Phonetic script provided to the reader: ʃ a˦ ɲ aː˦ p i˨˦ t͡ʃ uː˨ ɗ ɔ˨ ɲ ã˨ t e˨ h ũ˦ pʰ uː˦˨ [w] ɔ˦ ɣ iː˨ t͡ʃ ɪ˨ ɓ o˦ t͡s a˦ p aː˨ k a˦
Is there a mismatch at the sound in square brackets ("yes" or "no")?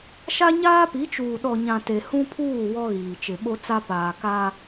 no